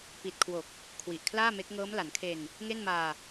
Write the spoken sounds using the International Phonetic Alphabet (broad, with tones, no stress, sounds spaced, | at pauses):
p i˨˩ t̚ kʰ w o˨˩ k̚ | kʰ w i˨˩ ʔ kʰ l aː˥˩ m e˦˥ k̚ ŋ ɤː˦˥ m l a˩˦ n kʰ e˧ n | ŋ e˥˩ n m aː˧